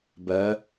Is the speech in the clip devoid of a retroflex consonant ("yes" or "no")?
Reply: yes